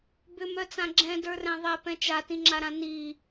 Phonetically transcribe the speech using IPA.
bʏmœt͡sã ɡ͡ǁɛ̃də˞rɛ̃ ðˤɛpɛ̃ t͡ʃatĩŋ͡ǁaɾã ni

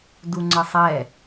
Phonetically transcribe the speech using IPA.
duŋ͡ǀəsˤɛ

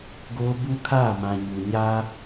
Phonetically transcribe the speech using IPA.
ɡo˦ bu˦kʰaː˦˨mã˨ ɲu˨ɲaː˦

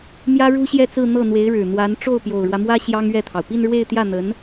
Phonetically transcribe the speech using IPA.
mjä˥ɻu˥ɕjɛ˥˧t͡sɹ̩˥˧ n̪ɤ˥˩n̪we˧˥ɪ̯ɻɻ̩˨˩n̪wa˧˥n ʈ͡ʂo˥˩ʊ̯pjo˨˩ʊ̯ɻwä˦mwä˥ ɕjɑ˥ŋɥɛ˥˩t̪ʰɑ˩ʊ̯ pi˥˧nɻwe˥˧ɪ̯t̪jä˥˩n̪ə˧˥n

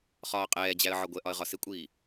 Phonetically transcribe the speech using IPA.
χɒːqʼɛːd͡ʑæə̯ ʕɒɡʷɛʔɒə̯ ʁɒsɪkʷʼiː

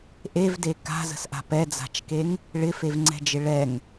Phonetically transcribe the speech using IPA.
ʔevde ka̤zə̤sʔa̤ pɛd͡za̤t͡ʃkeŋ | ɭɪfevŋ͡ǀɛ̤d͡ʒɪ ɭɛŋ

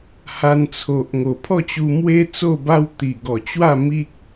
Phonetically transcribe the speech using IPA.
ha˧nt͡sʰo˨ʔŋo˨˩ pʰɔ˥˧t͡ɕu˧mwe˦ t͡so˥˧ba˦w t̪i˨˩ɡɔ˨˩t͡ɕwa˥˧ mi˦k̚

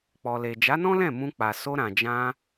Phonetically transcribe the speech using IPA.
k͡pɔ˨le˨ d͡ʒa˨˦nɔ̃˦lɛ̃˦˨ mũ˧k͡pa˨ so˧ɾã˨d͡ʒã˧

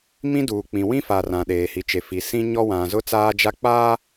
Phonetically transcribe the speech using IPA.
mĩ˦duː˨k͡pĩ˨ wĩ˦fa˨ rã˨ɗeː˨hi˨t͡ʃe˨ fi˨sĩ˦ɲɔ˦ wã˨zʊ˦ t͡saː˦d͡ʒa˦k͡paː˦

